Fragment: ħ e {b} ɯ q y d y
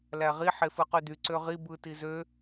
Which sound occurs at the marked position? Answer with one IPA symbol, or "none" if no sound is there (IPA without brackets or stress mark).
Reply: f